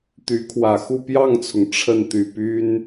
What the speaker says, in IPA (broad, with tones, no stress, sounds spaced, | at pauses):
t̪ y˧˥ kʰ w ä˨˩ x u˥˧ p j ɑ˥˩ ŋ t͡sʰ ʊ˩ ŋ ʈ͡ʂʰ ə˥˩ n t̪ y˨˩ p y˥ n